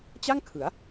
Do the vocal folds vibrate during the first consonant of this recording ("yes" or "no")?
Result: no